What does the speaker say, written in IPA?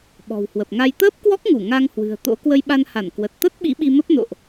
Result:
ɓɔ̤˨˩whwə˨˩p̚ŋa˧j t̪əː˦˥p̚kwɔ˦˥k̚ŋu˧˩ ŋa˧ŋhwɨ̤˨˩ə̯ t̪o̰˧˥ kwə˧jɓa˧nha˧˩n kwə˨˩t̚ t̪ə˦˥t̚ ɓḭ˧˥ɓi˧mə˦˥p̚ no̰˧˨ʔ

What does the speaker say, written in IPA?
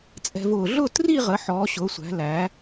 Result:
t͡sʼɛ̤˧vʊː˧˩ ɮʊː˥˧tri˥˧ʁə˩˧ ħɔː˩˧ɕʊː˩˧sʷæ̤˩˧ læ˩˧

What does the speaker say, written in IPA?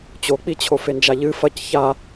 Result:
t͡ɕok͡pit͡ɕʰo fend͡ʒaʎɨ fɐc ça

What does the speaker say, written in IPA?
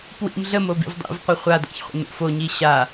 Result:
pwḭm ɮəmobḭv dˤḭvqʷə χʷada̰çχʷə̰ nṵfoɲi ɕa

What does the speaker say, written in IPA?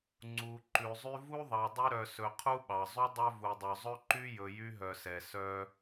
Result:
ŋ͡ǀu˨ ǃʉ˩zˤy˦ vu˥ðˤɑ˨ dˤy˦ɾœ˨sɵ˨ qʰu˥ɓɑ˩zˤy˥ dˤœ˥vu˨dˤœ˨ zˤɵ˥ǃy˥jɵ˨ jy˥ɦœ˨sɛ˩ sœ˦

